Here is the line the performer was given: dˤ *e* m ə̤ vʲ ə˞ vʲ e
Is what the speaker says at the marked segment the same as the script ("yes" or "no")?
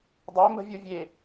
yes